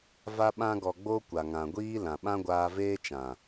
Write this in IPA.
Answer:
v a˧ ɓ ã˧ ɡ ɔ˨ ɡ͡b o˧ kʷ a˨ ŋ ã˨ ɡʷ iː˦ l ã˨ ɓ ã˦ ɡʷ aː˧ v eː˦ t͡ʃ ã˨

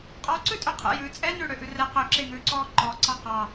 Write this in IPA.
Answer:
qʼ ɔ ǀ ʉ tʼ ø qʰ ɛ̰ j ʉː t͡sʼ ɛ n ʉ ɽ ø ʔ ʉ r ɛ q ø ǁ e ŋ ʉː ǀ ɔː ǃ ɔ ǀ ɑ q ɑ

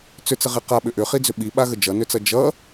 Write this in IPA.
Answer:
t͡s ʏ t͡s ə ʁ e q a ɓ ʏ ʔ ʏ χ i d͡z ʏ ɓ i ɓ a ɣ ə d͡ʒ ʌ n ʏ t͡s ʌ d͡ʒ ʌ

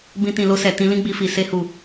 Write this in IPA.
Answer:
b ĩ˧ t ĩ˨ l o˧ s ɛ˨ t ĩ˧ l ĩ˦ ɡ͡b i˧ f i˨ s e˧ h u˨

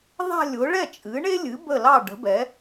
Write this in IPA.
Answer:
ðˤ a̤˥˧ lʲ ʊ˩˥ ɭ ɛ˥˩ t͡ʃʼ ɨ˩˥ ɳ e˥ lʲ ɨ˩˥ b ə˥˩ l ɑ˥˩ ɖ ə̤˩˥ b ɛ˩˥

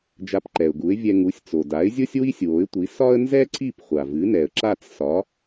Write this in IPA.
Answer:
d͡ʒ a˧ p ǃ ɛ˩ ʊ̯ ɡ u˩˥ ɪ̯ vʲ ɛ˧ ŋ u˩˥ sʲ t͡s o˩ d a˩˥ ɪ̯ zʲ o˥ sʲ w i˥ sʲ w o˩˥ ɪ̯ tʷ i˩˥ s ɒ˥ ə̯ n z ɛ˥ ǀ i˥˩ p χʷ a˩ v ɨ˩˥ n ɛ˩ ə̯ ǁ a˥˩ t͡s s ɒ˩˥

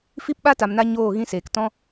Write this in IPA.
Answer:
f i˦ p ɓ a˦ t a˨ m n a˦ ɲ oː˦˨ ɣ ĩ˦ s eː˨ k t ɔ̃˦

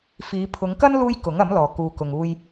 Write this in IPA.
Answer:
f iː˨˧ pʰ ʊ˨˧ ŋ k ɐ˥ n l uː˥ j k ʊ˨˥ ŋ ɐ˨˥ m l ɔː˨ k uː˨ k ʊ˨ ŋ uː˧ j

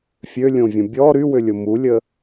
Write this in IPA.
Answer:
fʲ ø lʲ õ vʲ ɐ̃ bʲ ɔ ɾ y w ʏ lʲ ʊ m u lʲ ə

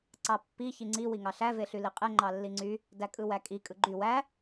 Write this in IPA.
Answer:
ǀ ɑ pː i ç i ŋ͡ǀ i w i ŋ ɑ ɬ æ v e ɬ y l i qʼ e ŋ͡ǃ ɑ lː i ŋ͡ǀ y | d æ kʼ ɯ w æ kʼ i kʼ ɯ ɡ͡ǃ y w æ

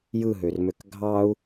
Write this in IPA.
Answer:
j ɯ ɦ ø r m ø k ɡʱ ɑ u̯

